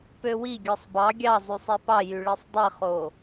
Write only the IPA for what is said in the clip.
p ø w i ɡʲ ɯ sˤ b ɑ ɡʲ ɑ zˤ y sˤ e p ɑ j y ɭ i sˤ dˤ i χ o

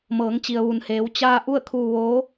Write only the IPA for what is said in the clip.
m ɤː˩˧ ŋ t͡ɕ i˩ ə̯ ʋ u˩ n h eː˩˧ w t͡ɕ aː˧ ʔ u˥˨ ə̯ kʰ uː˧ ʋ oː˧˥

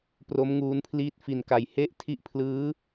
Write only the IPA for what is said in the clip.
p r o˦˥ m ŋ uː˧ n pʰ l iː˦˥ t̚ f i˨˩ n k a˨˩ j h e˥˩ ʔ tʰ i˦˥ ʔ pʰ l ɯː˦˥

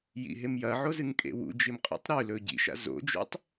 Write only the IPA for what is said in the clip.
j ḭ ɦ e m j ɐ ʕ o z ɨ ŋ kʼ ḛ w ṵ d͡ʒ i m qʼ ṵ tˤ ɾ ʉ l ɵ ɟ ḭ ʃ a̰ z o̰ d͡ʒ o̰ tˤ

